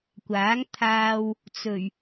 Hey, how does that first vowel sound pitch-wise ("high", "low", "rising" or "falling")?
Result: rising